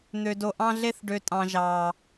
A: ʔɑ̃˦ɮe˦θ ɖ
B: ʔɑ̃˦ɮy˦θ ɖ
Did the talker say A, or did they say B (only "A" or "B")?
A